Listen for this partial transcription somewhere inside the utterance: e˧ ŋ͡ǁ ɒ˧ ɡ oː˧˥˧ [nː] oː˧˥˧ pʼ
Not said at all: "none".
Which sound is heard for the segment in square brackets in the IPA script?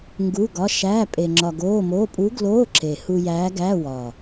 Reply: m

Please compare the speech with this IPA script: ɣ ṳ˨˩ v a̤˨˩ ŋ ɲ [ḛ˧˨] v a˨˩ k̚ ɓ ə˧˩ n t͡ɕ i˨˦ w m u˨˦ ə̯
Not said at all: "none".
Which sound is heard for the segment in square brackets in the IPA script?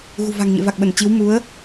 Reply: ḛ˧˨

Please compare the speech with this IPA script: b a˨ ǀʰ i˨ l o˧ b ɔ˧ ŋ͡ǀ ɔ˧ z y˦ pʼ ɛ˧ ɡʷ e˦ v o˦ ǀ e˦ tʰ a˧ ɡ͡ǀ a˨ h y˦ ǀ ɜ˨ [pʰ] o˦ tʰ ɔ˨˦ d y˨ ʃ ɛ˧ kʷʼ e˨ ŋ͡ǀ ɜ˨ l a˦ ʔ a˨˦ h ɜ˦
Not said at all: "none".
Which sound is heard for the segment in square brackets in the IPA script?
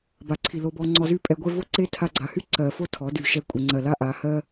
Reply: f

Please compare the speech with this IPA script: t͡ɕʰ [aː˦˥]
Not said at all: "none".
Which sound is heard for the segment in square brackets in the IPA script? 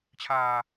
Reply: aː˧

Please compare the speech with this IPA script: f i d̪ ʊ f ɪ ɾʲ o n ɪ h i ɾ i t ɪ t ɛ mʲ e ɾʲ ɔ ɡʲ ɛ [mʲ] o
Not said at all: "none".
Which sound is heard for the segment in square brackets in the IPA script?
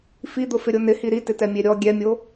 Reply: mʲ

